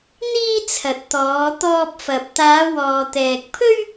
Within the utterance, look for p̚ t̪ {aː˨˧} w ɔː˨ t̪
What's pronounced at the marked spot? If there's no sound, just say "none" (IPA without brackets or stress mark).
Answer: aː˨˧